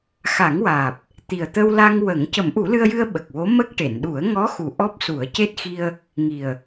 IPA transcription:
x a˨˩˦ ŋ w aː˨˩ p̚ | t̪ i˨˩ ə̯ t̪ ə˧ w l a˧ ŋ w ə˨˩˦ ŋ c ə˨˩˦ m ʔ u˨˩˦ l ɨ˧ ə̯ j ɨ˧ ə̯ ɓ ə˨˩ k̚ w o˧˥ m ə˦˥ k̚ ʈ e˨˩˨ n ɗ u˨˩˦ ə̯ ŋ ɔ˧˥ x u˨˩ ʔ ɔ˦˥ p̚ s u˨˩˦ ə̯ c e˦˥ t̚ x i˧ ə̯ | ŋ i˨˩ ə̯

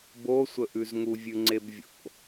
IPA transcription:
b o sʷ ə ʔ ʉ z ŋ u vʲ ʉ ŋ͡ǀ e b vʲ o̰

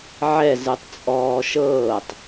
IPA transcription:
ʕ ɛ z ɯ tˤ t͡sʼ ɔː ʃ ɤː tˤ

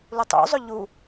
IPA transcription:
l u tˤ ṵ zˤ ɵ ʎ u

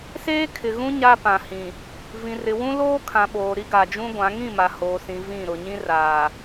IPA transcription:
s eː˦ kʰ ɪ˨ ɣ ũ˦ ɲ a˦ p ã˨ h ĩ˨ | v ĩ˨ r ɪ˨ w ũ˦ l oː˦ kʰ ã˨ ɓ oː˨ ɾ i˦ ɡ a˨ d͡ʒ ũ˦ ɡʷ ã˨˦ ŋ ĩ˦˨ m a˨ h oː˨ s ĩ˨ v ĩ˦˨ ɾ ʊ˨ ɲ ĩ˦ r aː˨

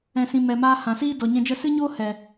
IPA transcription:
ɛ̃˨ s ĩ˨ m ɛ˨ m aː˧ h ã˨ s iː˦ d ɔ˨ ɲ ɛ̃˧ d͡ʒ ə˦ s ɨ˦ ɲ oː˦ h ɛ˨

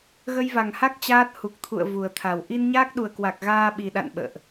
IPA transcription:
ɣ ə˧ j v a˨˩ ŋ h a˦˥ k̚ t͡ɕ aː˦˥ t̚ h u˨˩ k̚ t̪ʰ ṵ˧˨ ə̯ v u˨˩ ə̯ t̪ʰ a˨˩ w ʔ i˧ n ɲ aː˦˥ k̚ ɗ u˨˩ ə̯ k w a˨˩ k̚ ɣ aː˧ ɓ i˨˩ ɗ a̰˧˨ n ɓ ə̰ː˧˨ ʔ

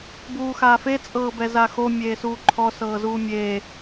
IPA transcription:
b uː x aː f e t͡sʼ ɤː b ɛ z a x o mʲ eː s uː ǃʰ ɔ s ɤː z uː mʲ eː

